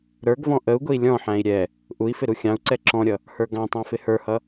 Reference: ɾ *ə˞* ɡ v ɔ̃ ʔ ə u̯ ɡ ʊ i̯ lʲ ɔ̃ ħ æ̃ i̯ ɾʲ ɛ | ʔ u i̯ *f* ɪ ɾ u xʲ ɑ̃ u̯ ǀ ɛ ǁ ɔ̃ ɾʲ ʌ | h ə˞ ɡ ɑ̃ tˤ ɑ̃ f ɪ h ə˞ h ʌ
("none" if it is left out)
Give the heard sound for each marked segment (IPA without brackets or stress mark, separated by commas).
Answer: ə˞, f